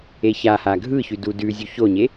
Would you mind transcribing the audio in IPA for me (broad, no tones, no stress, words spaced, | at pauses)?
eçaha ɡʱɯçʉ dudʉzʲu çoɲe